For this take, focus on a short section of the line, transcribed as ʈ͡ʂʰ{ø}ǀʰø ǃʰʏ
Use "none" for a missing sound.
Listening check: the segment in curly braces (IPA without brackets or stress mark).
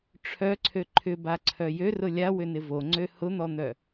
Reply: œ